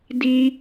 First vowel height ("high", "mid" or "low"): high